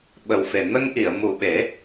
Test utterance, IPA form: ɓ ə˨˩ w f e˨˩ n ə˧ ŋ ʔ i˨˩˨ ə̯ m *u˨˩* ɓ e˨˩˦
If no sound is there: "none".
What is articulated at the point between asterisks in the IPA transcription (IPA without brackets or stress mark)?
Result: u˨˩